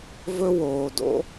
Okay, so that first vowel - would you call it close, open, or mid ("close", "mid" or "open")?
mid